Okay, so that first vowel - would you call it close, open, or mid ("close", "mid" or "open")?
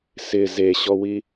close